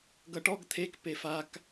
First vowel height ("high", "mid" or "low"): mid